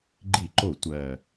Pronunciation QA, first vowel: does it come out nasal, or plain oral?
oral